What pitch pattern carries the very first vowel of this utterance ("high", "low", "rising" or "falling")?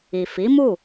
low